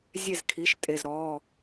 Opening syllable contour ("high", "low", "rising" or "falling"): falling